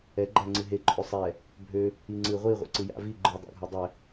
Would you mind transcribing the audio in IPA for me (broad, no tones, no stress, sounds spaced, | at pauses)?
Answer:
ɛ ɡ͡ǃ æ ŋ͡ǀ ɨ ɦ e ǃʼ ø sˤ ɛ | bʱ ø | i ŋ͡ǀ ɨ ʁʷ i ʁʷ ḛ ǀ ɨ j a̰ v i ɡ͡ǃ ɯ dˤ a̰ ɡʱ æ dˤ ɛ